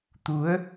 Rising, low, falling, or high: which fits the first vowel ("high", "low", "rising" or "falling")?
rising